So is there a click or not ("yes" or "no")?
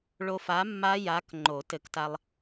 yes